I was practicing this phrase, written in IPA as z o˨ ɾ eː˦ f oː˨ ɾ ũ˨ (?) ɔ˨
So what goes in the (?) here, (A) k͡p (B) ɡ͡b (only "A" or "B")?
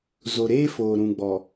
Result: B